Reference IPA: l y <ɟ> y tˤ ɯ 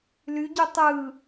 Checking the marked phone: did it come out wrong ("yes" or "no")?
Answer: no